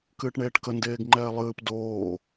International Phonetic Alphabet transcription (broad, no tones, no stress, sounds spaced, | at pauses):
k ɨː ʈ ɳ eː ʈ k ə n d eː ɡ ŋ͡ǃ ɛː lˠ ɨː p d oː